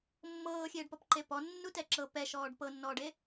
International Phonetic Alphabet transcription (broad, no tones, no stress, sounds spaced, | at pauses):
mː ɤː xʲ eː ɖ p ɔ p ǃ e p ɔ nː u t ɛ ǁ ɤ p ɛ ʃ ɔː ɖ p ɤ nː ɔː ɖ e